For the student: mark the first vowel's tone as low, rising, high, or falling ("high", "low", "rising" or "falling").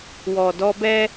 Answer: low